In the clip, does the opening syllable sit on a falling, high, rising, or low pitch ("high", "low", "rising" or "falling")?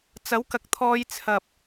rising